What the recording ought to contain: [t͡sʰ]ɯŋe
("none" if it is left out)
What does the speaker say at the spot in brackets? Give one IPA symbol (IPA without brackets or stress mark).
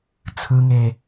t͡sʰ